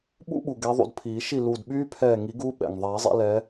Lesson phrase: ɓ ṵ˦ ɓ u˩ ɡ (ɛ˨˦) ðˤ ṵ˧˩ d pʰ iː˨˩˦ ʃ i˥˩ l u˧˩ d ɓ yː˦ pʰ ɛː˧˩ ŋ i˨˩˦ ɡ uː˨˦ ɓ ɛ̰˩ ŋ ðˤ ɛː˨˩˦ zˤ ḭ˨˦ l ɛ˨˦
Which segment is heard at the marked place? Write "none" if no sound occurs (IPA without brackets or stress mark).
ɛ˨˦